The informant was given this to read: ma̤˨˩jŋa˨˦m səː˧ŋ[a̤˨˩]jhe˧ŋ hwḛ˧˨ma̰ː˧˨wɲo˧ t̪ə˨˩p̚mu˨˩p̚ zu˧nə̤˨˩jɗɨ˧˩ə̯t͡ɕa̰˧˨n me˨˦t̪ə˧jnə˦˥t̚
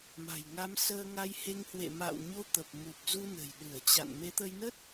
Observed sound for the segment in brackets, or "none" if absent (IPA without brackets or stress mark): a˧